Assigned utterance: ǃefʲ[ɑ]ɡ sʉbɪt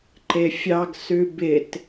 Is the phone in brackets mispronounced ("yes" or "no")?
no